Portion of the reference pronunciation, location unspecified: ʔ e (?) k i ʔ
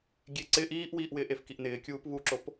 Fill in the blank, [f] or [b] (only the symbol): f